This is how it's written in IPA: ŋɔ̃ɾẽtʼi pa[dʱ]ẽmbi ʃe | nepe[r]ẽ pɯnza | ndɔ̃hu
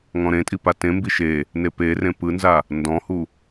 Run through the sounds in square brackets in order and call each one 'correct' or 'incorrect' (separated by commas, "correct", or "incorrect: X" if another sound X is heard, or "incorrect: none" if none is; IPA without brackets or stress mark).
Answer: incorrect: t, correct